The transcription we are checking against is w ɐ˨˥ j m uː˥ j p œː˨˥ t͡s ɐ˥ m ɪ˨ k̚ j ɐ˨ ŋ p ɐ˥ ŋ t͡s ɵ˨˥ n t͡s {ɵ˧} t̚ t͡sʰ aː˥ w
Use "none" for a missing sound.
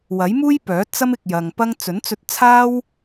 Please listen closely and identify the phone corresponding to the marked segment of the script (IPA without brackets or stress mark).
ɵ˧